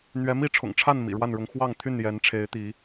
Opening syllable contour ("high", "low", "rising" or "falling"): rising